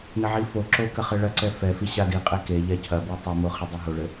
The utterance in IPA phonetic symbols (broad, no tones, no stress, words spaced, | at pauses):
nɘʕifoǁo kɐχɘɭɐǀɛ fɛfi ɕadiqʼe keʎɛ cʰɐbi tˤimo χɘdˤɛɦoɭɘ